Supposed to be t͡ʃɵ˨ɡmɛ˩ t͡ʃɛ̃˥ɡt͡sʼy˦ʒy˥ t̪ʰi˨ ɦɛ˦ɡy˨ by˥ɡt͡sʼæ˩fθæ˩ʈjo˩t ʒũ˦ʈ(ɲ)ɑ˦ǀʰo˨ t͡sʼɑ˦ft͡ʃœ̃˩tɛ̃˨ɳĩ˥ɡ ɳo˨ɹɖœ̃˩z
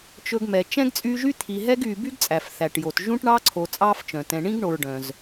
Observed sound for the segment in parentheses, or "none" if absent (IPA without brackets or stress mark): ɳ